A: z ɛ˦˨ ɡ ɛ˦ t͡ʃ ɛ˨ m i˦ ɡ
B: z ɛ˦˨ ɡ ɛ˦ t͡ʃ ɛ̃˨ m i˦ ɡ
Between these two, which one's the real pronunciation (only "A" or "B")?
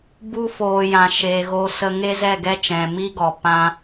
B